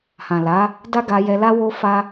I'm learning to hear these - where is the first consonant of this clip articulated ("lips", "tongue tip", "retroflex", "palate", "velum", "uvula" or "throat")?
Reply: throat